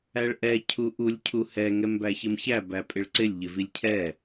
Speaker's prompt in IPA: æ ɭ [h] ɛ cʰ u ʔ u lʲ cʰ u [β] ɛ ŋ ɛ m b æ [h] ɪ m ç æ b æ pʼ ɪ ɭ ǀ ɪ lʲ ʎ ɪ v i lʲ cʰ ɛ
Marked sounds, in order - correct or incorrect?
incorrect: ʔ, incorrect: h, incorrect: ç

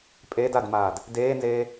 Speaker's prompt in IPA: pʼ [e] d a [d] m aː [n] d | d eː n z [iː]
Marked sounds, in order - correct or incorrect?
correct, correct, incorrect: none, incorrect: eː

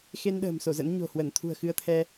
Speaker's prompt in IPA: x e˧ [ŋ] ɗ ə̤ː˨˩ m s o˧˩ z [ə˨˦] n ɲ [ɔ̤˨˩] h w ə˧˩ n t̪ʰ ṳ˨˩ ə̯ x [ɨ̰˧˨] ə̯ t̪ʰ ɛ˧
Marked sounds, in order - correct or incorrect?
incorrect: n, incorrect: ə̰˧˥, incorrect: o̤˨˩, incorrect: ɨ˧

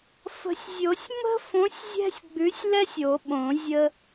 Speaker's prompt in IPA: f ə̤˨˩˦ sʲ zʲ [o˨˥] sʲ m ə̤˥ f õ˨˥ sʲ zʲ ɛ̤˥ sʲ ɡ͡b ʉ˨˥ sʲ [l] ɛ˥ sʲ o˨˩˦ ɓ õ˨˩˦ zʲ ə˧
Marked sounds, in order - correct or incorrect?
incorrect: o˨˩˦, correct

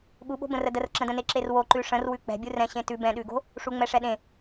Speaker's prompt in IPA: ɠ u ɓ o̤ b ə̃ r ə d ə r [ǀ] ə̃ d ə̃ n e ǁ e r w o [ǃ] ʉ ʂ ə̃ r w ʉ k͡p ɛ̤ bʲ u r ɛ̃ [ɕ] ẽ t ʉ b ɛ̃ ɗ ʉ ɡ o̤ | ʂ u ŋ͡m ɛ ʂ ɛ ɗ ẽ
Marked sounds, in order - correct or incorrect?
incorrect: ǁ, correct, correct

